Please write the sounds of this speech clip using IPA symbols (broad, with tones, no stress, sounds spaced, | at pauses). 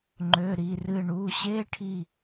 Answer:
ŋ͡ǃ ø˩˧˩ ɾ i˩˧˩ r ɨ˧˩ ɳ u˩˧˩ ɕ e˧˥˧ ʈʰ i˥˩